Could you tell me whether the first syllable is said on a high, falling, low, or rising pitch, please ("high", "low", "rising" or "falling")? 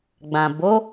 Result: low